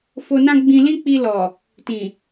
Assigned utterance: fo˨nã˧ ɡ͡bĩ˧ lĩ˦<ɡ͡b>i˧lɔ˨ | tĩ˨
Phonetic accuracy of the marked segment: incorrect: k͡p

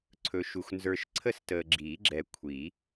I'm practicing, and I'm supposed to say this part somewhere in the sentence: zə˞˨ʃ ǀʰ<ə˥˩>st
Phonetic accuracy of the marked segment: correct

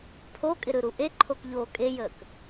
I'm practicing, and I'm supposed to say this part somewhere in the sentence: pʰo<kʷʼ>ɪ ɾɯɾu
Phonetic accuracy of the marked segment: incorrect: kʼ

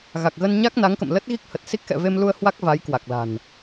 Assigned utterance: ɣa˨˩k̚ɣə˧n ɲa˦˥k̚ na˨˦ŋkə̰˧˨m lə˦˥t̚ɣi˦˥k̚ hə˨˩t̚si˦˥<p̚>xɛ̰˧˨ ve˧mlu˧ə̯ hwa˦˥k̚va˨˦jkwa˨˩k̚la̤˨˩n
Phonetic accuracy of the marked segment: incorrect: k̚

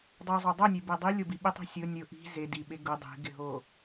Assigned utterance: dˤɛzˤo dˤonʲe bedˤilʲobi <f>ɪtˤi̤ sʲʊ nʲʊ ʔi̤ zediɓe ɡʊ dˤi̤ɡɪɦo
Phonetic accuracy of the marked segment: incorrect: ɓ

